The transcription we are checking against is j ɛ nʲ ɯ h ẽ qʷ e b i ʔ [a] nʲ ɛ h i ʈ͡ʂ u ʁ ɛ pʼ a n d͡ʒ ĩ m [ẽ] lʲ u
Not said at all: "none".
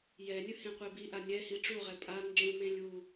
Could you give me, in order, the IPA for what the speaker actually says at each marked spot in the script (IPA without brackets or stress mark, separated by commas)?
a, ẽ